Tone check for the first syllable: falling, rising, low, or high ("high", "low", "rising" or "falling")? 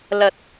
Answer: low